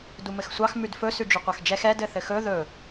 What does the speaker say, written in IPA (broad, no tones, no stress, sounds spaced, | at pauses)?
d u m ɘ x sʷ ɑ x m ʉ d f ɵ s ʉ d͡ʒ ʉ qʷ ɑ x d͡ʒ ɛ x ɛ d ɘ θ ɘ x ɵ ð ɵ